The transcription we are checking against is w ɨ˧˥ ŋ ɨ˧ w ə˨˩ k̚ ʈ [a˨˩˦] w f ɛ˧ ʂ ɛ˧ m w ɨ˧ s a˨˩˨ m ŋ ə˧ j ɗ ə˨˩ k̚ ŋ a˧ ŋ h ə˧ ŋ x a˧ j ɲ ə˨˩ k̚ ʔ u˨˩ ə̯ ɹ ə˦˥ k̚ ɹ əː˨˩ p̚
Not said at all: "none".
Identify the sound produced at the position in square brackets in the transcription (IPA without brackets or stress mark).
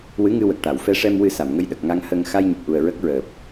a˨˩˨